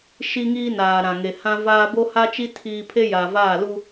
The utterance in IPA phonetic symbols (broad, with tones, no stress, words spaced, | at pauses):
ʃi˦ŋiː˦naː˨ ɾã˨ŋe˨ hã˦vaː˦ bo˦ha˦t͡ʃi˦ tʰiː˦ pʰe˦ja˨vaː˦˨ lu˦